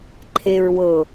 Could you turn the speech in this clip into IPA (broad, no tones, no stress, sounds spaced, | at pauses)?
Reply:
ǃʰ e ɹ w ɤ